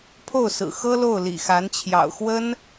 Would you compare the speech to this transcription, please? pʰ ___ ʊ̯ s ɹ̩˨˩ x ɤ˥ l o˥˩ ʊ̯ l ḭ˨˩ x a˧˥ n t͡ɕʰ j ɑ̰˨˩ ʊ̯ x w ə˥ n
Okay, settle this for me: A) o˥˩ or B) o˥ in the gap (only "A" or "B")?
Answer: A